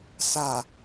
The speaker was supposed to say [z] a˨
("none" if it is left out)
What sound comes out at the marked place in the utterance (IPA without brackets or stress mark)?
s